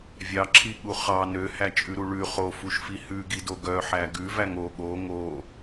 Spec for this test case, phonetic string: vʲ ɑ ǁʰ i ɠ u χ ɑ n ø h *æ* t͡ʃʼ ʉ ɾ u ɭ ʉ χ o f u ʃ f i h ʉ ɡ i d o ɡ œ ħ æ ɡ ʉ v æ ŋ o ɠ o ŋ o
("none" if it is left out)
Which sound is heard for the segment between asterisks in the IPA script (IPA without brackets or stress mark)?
æ